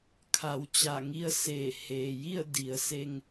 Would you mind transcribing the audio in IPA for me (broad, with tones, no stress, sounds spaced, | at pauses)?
kʰ a˩˧ w t͡ɕ a˧˩ ŋ i˧ ə̯ s eː˧˩ h eː˩ j i˥˨ ə̯ d i˩˧ ə̯ s e˧ ŋ